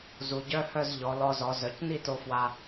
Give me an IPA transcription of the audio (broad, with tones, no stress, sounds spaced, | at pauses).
z u˩˧ ɟ œ˧˥˧ h œ˥˧ z ʎ ɔ˩˧ l ɔ˧ z ɔ˩˧ z œ˩˧ c n i˥˧ t o˧ f w a˧